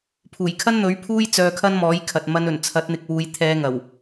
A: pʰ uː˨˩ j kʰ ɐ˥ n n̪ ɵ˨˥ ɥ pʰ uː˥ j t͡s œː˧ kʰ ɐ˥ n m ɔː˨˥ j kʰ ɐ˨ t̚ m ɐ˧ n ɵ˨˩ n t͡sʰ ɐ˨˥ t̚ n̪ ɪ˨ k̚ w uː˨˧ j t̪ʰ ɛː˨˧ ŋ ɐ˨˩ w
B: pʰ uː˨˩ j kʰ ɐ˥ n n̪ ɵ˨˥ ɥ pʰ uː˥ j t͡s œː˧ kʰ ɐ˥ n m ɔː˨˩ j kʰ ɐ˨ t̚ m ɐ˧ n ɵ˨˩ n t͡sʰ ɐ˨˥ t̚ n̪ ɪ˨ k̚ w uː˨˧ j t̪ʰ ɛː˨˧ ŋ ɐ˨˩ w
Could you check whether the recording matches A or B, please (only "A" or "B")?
A